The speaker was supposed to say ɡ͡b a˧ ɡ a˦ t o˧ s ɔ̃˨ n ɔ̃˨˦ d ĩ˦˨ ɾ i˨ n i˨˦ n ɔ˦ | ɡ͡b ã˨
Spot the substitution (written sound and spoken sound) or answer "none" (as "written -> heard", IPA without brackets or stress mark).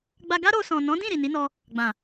t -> ɾ